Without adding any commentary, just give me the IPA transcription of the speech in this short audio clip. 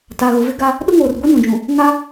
t a˨ ɣ ʊ˨ v ɪ˦ ɡ a˦ | ɗ ʊ˦ ŋ oː˨ r ɡʷ i˦ n ũ˨ d͡ʒ ũ˨ | ŋ a˦

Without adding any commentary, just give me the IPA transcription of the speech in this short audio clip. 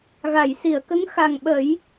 ɣ a˨˩˨ j s i˨˩˨ ə̯ k ə˧˥ ŋ x a˨˩ ŋ ɓ ə˨˩˦ j

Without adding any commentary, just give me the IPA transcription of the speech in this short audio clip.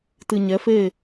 t ɨ˨ ɲ ɛ˨˦ f e˦˨

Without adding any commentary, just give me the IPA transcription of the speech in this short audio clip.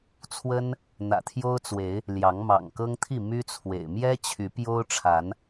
t͡sʰ w ə˦ n | n̪ ä̰˨˩ t̪ʰ j o˦ ʊ̯ t͡s w e˨˦ ɪ̯ | l j ɑ˨˦ ŋ m ɑ̰˨˩ ŋ k ɤ˦ ŋ t̪ʰ i˥˨ m y˦ t͡sʰ w ḛ˨˩ ɪ̯ m j ɛ˦ t͡ɕʰ y˨˦ p j o˦ ʊ̯ ʈ͡ʂʰ a˨˦ n

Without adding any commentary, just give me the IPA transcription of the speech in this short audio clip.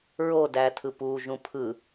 ɹ o d æː tʰ ɯ p uː ʒ ũ pʰ ɯ

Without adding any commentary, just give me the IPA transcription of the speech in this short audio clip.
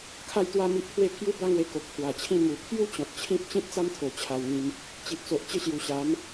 kʰ a˥˧ j t̪ w a˥˧ m i˦ ʔ pʰ w e˦ pʰ j u˦ b a˦ ŋ w e˧ k o˨ k̚ pʰ w a˨˩ t͡ɕʰ ĩ˥˧ m u˨˩ pʰ j u˦ t͡ɕ ɔ̃˨ t̚ t͡ɕʰ ĩ˦ p̚ t͡ɕ ĩ˦ t̚ t͡s a˦ m t̪ʰ o˨˩ t͡ɕʰ a˧ w ŋ ĩ˧ m | t͡ɕ i˨ ʔ t͡s o˨ ʔ t͡ɕ ə˥˧ ɕ j u˨˩ ɕ a˨˦ m

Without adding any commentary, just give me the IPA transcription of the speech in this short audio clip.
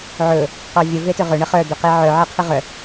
ʕ ɵ | q ɔ vʲ ə v e t ɵ ʁ ɵ ɳ ə χ œ d̪ ɵ q e ʕ œ ʕ e qʰ ɨ ʁ œ

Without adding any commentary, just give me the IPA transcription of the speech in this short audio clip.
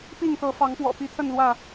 p i˥˨ ŋ t̪ ɤ˨˦ f ɑ˨˦ ŋ p w ɔ̰˨˩ p i˨˦ t̪ʰ ə˥˨ n l w ä˥˨

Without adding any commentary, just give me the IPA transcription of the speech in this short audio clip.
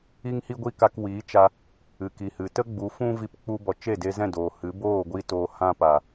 i˦ ŋ h i˦ ɡʷ i˦ k a˧ k w iː˨˦ t͡ʃ a˧ | ɨ˨ k i˨ h ɨ˨ t ə˦ ɡ͡b u˨˦ f ũ˦ v i˧ p k͡p u˧ b ɔ˨ t͡ʃ e˦˨ d e˧ z ɛ̃˦˨ d oː˨ h ɨ˨˦ b oː˦˨ ɡʷ iː˧ t oː˨ h ã˧ p a˨

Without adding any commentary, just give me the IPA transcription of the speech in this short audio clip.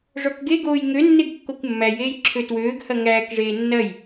ʐ ɔ k ɡ e ɡ oː j ŋ ø nː e ɡ kː o kʷ mː æ j eː j ǁʰ ø t w øː ɡ h ɐ ŋ æː k ʐ eː nː ɐ j

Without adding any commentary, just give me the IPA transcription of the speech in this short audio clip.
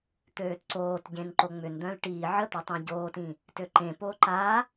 t̪ øː t ǀ oː t ɟ ẽ n ǃ o ŋ͡m ʏ n d̪ œ̃ l ʈ iː ʕ ə t̪ œ tˤ ẽ ɟ oː t ĩ | t ø ǃ ẽ p oː ǃ a

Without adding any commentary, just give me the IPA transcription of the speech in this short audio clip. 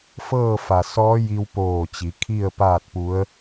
f ɤː˥˨ f a˩ s ɔː˧˥ j i˧ w p oː˧˩ t͡ɕ i˩˧ kʰ i˥˨ ə̯ p aː˥˨ t̚ p u˧˥ ə̯

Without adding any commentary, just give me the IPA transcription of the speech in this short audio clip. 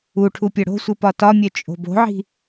u ʈʰ u pʲ œ ɽ o̤ sʷ ɨ p ɒ t ɒ mʲ œ t͡ʃʼ o̤ b o̤ ʕ i̤

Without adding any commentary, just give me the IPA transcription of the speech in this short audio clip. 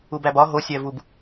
u b æ b ɒ ɦ o sʲ æ v u b

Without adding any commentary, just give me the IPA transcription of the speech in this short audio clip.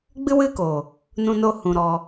ɡ͡b ɨ˦ w ɨ˦ k oː˨ | n ũ˧ n o˧ h ũ˨ ɾ ɔ˧

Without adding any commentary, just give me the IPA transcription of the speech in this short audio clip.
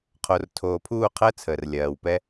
qʰ o˨ r tʰ oː˨ pʰ uː˦˨ qʰ əː˦ t͡sʰ əː˨ r lʲ ɜː˨ w p ɛ˦

